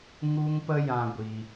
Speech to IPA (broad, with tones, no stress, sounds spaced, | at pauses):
ŋ u˦ ŋ p ə˦ j ã˧ ɡʷ i˧